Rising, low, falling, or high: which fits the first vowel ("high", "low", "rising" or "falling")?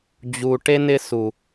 low